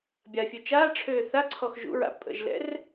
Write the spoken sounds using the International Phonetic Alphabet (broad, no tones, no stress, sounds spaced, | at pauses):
bʲ a fʲ ø t͡ʃ aː ʈ͡ʂʰ øː θ a ǀʰ ɔ x ʒ ṵ ɹ a̰ pʼ ə̰ ʒ l ɛ̰ r